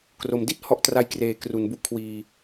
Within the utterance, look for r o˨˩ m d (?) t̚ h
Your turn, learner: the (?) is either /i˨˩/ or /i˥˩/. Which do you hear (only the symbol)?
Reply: i˥˩